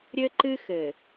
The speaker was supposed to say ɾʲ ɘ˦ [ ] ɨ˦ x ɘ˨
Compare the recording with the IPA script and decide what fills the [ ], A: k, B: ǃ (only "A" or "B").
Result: B